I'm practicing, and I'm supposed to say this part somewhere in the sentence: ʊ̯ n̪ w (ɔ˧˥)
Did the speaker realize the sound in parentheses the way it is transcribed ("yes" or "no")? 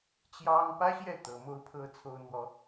no